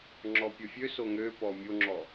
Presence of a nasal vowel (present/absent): absent